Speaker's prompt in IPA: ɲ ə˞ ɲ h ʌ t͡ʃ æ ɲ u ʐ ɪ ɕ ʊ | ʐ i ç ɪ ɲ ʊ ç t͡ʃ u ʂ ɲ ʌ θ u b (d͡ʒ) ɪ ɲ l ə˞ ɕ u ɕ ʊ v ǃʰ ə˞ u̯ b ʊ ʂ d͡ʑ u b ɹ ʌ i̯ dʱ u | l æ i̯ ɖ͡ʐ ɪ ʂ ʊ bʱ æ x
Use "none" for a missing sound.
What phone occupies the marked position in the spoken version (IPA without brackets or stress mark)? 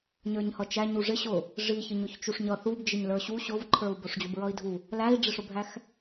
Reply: d͡ʒ